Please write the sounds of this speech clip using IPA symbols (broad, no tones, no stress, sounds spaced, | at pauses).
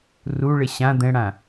r u ɭ ɪ ɕ ã d̪ ɛ̃ ɽ ã